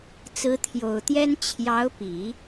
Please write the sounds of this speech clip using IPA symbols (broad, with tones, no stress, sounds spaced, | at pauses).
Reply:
t͡s ɹ̩˧˥ t̪ʰ j o˨˩ ʊ̯ t̪ j ɛ˥ n t͡ɕʰ j ɑ˧˥ ʊ̯ p i˨˩˦